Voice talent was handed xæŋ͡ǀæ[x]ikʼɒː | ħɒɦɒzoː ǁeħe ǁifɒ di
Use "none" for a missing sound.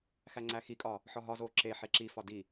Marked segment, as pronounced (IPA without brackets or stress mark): x